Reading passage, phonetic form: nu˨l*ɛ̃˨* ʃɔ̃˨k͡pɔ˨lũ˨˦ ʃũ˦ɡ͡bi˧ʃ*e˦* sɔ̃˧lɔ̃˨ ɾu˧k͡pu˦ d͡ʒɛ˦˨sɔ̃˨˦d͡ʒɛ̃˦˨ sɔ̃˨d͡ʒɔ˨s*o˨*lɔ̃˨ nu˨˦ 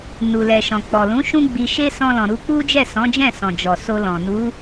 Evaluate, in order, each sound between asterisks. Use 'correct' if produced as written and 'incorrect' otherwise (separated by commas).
incorrect, correct, incorrect